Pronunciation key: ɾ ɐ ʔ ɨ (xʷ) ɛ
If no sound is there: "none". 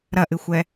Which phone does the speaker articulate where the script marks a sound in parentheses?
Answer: xʷ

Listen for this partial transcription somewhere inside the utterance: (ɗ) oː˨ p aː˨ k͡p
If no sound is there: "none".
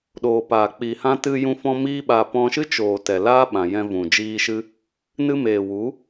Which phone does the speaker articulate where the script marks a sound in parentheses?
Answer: ɗ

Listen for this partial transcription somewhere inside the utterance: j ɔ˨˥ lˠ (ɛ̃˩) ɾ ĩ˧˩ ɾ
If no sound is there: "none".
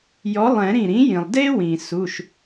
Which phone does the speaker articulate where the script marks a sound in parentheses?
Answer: ɛ̃˨˩˦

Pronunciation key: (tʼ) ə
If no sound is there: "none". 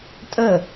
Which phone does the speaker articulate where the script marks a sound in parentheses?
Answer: tʼ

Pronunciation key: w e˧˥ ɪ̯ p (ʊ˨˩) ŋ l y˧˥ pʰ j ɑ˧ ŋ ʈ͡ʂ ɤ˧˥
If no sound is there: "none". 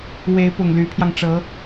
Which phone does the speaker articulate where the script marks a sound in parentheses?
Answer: ʊ˨˩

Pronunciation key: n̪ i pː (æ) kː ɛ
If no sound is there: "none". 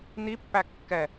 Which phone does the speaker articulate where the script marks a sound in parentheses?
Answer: æ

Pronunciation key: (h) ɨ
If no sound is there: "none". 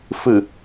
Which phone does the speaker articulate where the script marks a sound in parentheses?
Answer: f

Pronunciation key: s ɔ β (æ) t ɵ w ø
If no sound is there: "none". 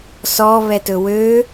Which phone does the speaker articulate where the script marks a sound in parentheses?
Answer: ɛ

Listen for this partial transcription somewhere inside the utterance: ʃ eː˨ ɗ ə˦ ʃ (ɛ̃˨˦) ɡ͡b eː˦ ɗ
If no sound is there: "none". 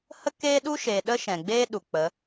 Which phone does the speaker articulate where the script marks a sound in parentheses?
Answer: ɛ̃˨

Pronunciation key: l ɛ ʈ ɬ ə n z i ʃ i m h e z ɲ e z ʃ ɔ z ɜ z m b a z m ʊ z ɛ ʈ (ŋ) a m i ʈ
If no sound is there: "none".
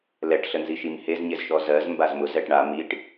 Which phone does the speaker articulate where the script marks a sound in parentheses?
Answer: ɳ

